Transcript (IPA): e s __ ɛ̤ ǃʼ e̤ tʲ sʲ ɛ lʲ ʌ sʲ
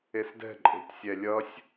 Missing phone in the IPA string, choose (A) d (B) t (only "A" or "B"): A